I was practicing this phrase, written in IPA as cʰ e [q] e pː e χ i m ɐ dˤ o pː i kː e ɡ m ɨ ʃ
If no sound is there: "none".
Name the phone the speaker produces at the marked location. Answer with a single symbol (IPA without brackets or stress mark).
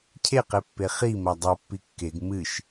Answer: q